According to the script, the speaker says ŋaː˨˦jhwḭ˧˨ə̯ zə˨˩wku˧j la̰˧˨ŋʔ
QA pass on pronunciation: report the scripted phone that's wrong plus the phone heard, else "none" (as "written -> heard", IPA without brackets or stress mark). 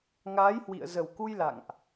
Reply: none